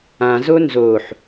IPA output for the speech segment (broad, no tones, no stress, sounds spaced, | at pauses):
ã z o n z o ħ